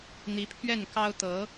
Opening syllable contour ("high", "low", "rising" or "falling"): rising